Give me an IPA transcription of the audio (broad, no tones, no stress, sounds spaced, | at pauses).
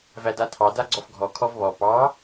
v æ d a tʰ ɑ d a ɡ͡ǀ ɔ f ɡʱ ɔ kʰ ɔ v β ɔ p ɑ